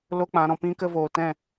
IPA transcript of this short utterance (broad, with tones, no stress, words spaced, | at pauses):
lo˦k͡pã˨˦ ɾɔ̃˨pĩ˦kə˧ voː˨tɛ̃˦˨